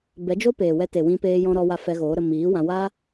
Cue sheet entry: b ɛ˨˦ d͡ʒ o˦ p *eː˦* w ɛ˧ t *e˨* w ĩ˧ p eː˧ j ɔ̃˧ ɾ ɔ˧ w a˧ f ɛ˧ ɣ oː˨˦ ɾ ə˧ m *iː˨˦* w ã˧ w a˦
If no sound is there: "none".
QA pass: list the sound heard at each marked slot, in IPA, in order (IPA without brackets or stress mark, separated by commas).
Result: eː˨, e˨, iː˨˦